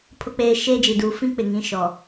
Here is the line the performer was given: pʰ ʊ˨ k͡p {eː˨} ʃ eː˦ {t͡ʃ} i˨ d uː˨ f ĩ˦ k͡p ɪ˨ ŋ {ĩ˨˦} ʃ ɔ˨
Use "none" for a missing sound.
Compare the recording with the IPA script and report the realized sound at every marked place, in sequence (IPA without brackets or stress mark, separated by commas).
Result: eː˨, d͡ʒ, ĩ˨˦